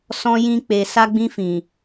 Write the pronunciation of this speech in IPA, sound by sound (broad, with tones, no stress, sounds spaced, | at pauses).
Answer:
s ɔ̃˧ j ĩ˧ k͡p e˨ s a˧ ɡ͡b ĩ˧ f ĩ˨